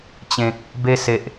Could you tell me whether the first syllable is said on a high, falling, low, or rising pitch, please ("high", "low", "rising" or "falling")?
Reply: low